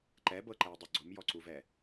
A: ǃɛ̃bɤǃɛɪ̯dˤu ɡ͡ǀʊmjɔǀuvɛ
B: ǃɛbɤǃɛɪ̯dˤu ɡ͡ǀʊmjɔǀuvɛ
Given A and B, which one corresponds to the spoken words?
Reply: B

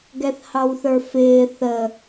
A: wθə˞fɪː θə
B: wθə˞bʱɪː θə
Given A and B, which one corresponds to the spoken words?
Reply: A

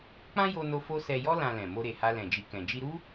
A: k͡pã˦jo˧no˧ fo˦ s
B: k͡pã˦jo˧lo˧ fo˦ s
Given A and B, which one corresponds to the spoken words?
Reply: A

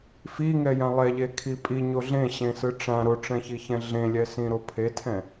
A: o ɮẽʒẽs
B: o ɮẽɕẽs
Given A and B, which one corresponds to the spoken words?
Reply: B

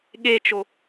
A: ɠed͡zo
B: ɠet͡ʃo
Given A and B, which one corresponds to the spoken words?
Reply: B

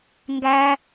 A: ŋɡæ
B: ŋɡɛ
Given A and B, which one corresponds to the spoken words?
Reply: A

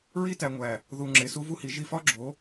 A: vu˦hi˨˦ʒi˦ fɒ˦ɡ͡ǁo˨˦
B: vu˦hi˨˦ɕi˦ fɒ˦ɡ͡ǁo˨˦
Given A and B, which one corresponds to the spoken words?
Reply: A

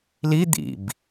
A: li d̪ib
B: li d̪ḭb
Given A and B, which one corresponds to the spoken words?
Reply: B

